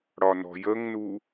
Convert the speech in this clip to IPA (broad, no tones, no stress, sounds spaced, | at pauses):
ɽ ɒ n ɔ̤ j ə ŋ n u